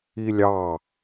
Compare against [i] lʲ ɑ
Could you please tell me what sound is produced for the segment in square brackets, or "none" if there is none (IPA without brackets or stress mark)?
i